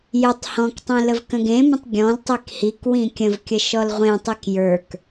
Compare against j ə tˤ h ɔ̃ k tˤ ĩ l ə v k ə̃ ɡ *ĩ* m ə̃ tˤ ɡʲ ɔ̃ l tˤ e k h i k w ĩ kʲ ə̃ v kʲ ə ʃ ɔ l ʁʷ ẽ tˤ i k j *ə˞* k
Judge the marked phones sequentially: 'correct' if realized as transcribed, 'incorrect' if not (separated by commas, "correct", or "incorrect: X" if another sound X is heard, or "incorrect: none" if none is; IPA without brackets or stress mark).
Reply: incorrect: ẽ, correct